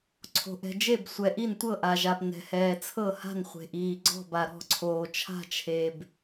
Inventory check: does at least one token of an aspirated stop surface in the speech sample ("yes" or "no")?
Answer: yes